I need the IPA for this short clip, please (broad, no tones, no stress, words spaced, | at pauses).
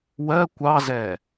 wɜ kʷɑzɛ